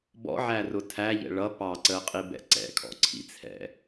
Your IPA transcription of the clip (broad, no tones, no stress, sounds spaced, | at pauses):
b ɔ̰ ʕ æ r ʊ tʰ æ ʎ ɛ̰ ɭ ʌ p ɑ ǀ əː qʼ i b ɛ̰ ǀ ɛ̰ kʰ ɔ̰ ǀʰ ḭ t͡sʰ ɛ̰